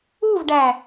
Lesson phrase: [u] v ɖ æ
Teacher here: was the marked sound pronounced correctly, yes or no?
yes